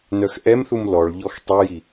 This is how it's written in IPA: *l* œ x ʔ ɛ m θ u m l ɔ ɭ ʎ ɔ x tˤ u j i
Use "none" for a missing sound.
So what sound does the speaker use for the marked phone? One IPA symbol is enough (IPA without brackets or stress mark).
n